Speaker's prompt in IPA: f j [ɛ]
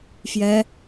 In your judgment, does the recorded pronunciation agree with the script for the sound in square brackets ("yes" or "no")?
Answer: yes